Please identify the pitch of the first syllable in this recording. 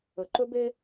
low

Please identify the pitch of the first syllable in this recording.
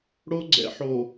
high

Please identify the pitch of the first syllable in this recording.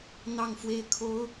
falling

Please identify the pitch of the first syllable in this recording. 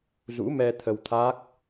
rising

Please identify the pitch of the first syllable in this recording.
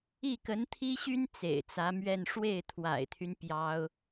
falling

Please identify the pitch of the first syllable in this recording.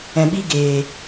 low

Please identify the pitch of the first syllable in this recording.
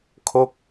falling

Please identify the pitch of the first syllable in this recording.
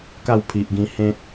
falling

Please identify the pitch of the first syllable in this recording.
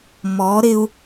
rising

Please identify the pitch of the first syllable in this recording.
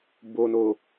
low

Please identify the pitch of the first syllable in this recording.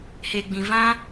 low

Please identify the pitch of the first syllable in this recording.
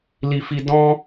high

